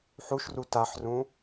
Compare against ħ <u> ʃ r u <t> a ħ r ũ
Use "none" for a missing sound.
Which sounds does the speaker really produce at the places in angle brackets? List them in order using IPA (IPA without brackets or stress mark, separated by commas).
u, t